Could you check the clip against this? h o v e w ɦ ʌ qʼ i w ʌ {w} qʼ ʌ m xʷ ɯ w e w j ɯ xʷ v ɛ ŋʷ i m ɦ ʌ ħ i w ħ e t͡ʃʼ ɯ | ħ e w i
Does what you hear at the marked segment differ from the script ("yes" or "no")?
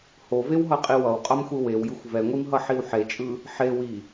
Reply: no